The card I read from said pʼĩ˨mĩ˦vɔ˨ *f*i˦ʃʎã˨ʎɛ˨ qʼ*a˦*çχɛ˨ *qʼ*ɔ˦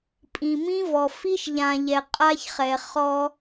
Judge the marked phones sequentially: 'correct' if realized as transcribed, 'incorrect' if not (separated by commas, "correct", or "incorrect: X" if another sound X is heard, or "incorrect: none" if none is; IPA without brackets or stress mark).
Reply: correct, correct, incorrect: χ